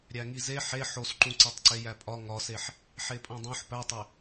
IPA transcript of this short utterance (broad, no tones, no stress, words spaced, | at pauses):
ɾʲæŋize ħe ħosǃũ ǀetˤǀejæpʼɒ ŋɒseħ | ħepʼõdˤõħ pætˤe